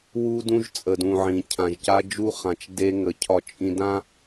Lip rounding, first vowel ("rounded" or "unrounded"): rounded